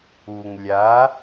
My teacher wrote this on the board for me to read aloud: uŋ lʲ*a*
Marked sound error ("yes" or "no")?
no